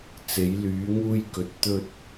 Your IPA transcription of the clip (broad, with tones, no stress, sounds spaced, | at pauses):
t͡s e˨˧ j l yː˨˧ ŋ uː˧ j k ɵ˨˥ t̚ t̪ ɵ˧ t̚